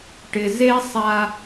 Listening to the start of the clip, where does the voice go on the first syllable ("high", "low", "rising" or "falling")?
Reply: low